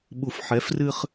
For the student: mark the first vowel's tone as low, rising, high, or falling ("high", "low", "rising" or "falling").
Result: low